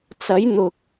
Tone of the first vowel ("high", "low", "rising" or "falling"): rising